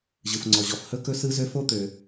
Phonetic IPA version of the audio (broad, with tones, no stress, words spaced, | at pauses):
ʑɯ˩fŋ͡ǀɔ˩ʑɔ˩f hɵ˥kɵ˥ sɯ˥zø˥ fo˥t̪ø˩